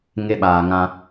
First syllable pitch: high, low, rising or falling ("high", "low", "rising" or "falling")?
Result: high